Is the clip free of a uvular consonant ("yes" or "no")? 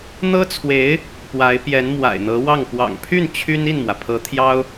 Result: yes